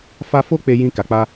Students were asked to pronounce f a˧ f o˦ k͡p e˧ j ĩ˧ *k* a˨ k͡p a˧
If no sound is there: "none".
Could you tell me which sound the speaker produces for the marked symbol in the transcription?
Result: k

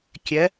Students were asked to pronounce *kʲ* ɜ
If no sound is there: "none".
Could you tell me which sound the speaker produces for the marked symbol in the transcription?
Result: kʲ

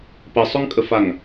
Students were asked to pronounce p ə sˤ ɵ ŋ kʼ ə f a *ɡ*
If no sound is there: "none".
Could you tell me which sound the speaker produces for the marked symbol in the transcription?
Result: ŋ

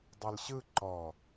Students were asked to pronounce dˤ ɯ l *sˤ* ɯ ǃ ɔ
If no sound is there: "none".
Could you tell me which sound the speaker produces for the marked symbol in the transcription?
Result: ɕ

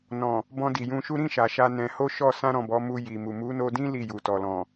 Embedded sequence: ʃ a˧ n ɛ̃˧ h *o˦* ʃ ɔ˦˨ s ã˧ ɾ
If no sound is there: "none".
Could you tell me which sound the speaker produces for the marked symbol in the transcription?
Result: o˦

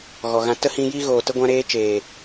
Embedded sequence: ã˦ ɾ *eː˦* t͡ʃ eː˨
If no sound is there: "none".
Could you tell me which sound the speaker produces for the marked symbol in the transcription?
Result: eː˦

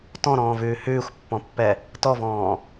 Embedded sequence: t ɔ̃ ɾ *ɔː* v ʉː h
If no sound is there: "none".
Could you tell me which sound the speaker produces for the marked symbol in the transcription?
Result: ɔ̃ː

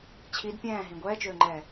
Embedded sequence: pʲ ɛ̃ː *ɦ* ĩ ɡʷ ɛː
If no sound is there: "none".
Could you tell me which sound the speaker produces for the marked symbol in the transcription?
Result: ɦ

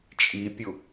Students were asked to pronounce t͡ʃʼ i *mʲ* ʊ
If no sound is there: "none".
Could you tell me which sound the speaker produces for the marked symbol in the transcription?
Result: pʲ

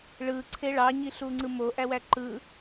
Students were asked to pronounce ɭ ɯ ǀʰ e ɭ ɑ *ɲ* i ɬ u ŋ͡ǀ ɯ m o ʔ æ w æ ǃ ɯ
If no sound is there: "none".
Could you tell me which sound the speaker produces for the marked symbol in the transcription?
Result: ɲ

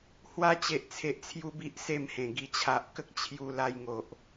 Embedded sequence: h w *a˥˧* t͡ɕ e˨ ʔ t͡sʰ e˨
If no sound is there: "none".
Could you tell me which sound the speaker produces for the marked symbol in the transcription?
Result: a˧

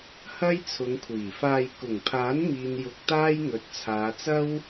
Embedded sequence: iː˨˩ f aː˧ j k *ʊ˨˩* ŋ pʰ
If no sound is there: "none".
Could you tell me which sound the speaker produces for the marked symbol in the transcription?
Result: ʊ˨˩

